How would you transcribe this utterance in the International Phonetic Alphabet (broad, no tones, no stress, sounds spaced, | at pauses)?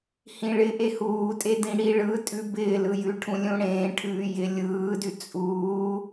h ĩ ɭ ɪ ʔ e h uː tʼ e d ĩ ɽ i ɭ ɯ tʼ ʉ b ɪː l ɯ j ʉ ʈʰ ũ lʲ ũ ɽ ẽː ʈʰ ʉː j ɪ lʲ ɯː d ʉ t͡sʼ uː